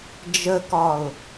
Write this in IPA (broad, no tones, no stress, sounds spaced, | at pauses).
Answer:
d͡ʒ ə k ɒ ʊ̯